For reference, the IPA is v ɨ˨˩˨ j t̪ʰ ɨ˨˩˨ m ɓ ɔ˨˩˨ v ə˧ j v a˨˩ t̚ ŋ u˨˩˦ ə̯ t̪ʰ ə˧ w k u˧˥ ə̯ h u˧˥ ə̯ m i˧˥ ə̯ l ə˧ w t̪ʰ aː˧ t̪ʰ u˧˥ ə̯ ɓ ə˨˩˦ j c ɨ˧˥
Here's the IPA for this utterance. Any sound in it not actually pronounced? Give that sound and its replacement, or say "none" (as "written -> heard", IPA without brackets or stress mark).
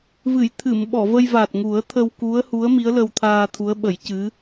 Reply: none